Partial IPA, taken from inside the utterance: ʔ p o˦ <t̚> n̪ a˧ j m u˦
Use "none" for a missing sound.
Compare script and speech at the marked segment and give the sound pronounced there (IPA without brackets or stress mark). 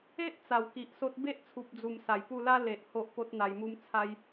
t̚